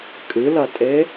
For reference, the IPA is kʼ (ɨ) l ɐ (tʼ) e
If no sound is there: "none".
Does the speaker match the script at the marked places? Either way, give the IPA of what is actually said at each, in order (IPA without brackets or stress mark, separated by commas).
ɨ, tʼ